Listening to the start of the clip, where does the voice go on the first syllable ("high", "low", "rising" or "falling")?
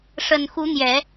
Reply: low